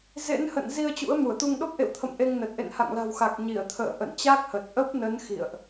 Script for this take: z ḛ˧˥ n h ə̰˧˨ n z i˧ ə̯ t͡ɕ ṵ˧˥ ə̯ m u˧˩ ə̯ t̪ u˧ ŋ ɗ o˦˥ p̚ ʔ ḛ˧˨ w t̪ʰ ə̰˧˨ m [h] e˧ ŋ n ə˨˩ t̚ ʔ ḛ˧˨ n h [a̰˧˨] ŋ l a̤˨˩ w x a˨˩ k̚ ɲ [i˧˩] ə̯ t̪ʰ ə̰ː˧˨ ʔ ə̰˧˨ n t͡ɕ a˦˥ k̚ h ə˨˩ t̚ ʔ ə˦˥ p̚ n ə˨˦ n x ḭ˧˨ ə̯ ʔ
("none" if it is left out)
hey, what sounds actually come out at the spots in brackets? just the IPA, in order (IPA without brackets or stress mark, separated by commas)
ʔ, a̰˧˨, i˧˩